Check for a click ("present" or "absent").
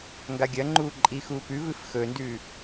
present